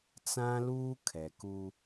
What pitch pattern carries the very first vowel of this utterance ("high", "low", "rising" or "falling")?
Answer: high